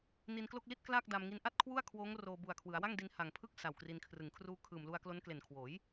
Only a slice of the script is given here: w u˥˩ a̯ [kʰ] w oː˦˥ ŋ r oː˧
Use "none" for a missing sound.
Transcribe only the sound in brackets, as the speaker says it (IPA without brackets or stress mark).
kʰ